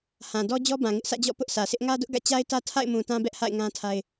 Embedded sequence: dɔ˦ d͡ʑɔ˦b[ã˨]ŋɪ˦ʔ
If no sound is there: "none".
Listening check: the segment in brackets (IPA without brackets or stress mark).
ã˨